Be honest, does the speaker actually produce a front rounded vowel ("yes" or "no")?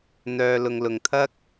yes